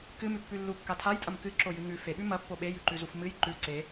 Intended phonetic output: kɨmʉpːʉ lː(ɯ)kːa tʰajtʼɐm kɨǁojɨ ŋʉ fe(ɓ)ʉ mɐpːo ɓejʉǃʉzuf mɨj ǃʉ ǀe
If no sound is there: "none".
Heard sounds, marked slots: u, ɓ

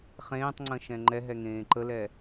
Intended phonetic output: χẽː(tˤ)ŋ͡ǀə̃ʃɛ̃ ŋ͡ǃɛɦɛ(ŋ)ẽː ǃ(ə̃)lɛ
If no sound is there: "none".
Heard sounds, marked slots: tˤ, ŋ, ə

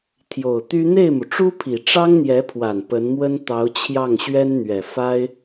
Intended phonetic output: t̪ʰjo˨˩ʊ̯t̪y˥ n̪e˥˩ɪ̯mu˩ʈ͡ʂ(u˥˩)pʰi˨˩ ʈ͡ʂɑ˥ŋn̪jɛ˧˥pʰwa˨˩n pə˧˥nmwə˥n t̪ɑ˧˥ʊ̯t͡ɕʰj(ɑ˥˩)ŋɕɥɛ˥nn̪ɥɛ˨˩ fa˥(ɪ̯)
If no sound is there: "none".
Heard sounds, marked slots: u˥, ɑ˥˩, ɪ̯

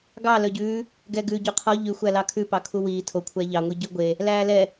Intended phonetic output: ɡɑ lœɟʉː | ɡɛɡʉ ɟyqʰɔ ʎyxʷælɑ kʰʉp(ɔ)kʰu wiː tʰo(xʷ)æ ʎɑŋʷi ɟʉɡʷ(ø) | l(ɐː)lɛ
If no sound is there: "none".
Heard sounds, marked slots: ɑ, kʷʰ, e, æː

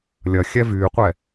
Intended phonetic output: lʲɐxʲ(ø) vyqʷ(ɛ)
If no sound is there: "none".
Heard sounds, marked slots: ɛ, ɛ

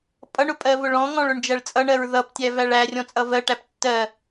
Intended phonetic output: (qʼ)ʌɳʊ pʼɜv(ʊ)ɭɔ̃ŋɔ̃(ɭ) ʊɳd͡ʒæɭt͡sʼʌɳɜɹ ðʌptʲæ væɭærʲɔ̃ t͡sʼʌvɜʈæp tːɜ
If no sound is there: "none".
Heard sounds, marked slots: pʼ, ʊ, ɭ

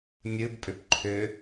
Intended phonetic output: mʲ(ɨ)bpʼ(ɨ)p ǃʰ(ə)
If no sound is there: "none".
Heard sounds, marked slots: ɨ, ʏ, ʏ

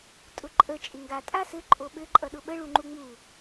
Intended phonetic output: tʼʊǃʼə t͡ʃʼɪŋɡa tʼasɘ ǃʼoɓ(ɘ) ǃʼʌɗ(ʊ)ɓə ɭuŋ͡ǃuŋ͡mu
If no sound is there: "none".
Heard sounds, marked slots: ɘ, ʊ

